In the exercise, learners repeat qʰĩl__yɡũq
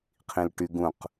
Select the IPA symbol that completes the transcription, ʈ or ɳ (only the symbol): ʈ